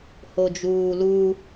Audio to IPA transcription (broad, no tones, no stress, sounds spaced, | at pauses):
h o d͡ʒ uː l u